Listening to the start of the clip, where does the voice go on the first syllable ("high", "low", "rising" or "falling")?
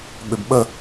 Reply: low